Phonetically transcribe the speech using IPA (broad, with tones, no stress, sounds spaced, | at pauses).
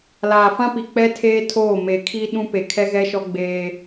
l aː˨ f ã˦ p i˨ k͡p ɛ˦ tʰ eː˦ tʰ oː˦˨ m e˨ kʰ i˦ ɗ ũ˦ p e˨ kʰ ɛ˦ ɣ ɛ˦ ʃ ɔ˦ ɡ͡b eː˦